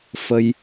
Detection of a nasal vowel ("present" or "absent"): absent